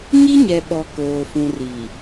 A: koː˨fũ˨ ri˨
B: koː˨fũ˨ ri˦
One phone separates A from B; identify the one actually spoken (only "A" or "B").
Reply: A